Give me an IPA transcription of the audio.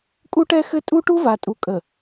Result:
kʼu˦ʈɛ˦xɘ˦ tʼu˦ʈu˦va˨tʼu˨ kʼə˨

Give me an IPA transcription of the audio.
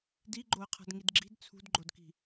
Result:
diɡ͡ǃoə̯qʰa̤d ŋidɡ͡ǁi̤d t͡sʰṳdɡ͡ǃodki̤

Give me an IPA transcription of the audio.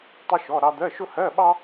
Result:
tˤʊ˥ʃɔ˧˥˧ ɾɑ˥ d̪ɜ˧˥˧ʃʊ˥ hɜ˧˥˧ɓɑ˥

